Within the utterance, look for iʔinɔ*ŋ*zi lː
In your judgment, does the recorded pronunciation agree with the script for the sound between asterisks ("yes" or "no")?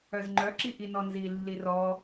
no